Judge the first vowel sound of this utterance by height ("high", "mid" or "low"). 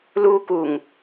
high